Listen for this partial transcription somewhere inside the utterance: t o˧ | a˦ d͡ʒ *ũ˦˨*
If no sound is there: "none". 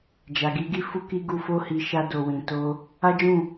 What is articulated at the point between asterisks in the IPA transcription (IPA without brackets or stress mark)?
ũ˦˨